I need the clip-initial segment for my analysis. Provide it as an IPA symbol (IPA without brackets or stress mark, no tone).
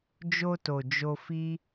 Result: d͡ʒ